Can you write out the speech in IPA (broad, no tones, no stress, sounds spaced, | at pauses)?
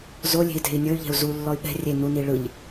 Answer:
z o lʲ e̤ i̯ t e̤ i̯ nʲ ɤ y̯ ʎ ɛ̤ u̯ z u lː ɔ y̯ ɓ ɛ̤ rʲ e n u n i ɭ ɯ ʎ